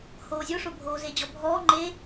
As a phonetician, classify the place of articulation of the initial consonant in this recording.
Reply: glottal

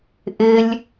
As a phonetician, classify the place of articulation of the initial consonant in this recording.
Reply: glottal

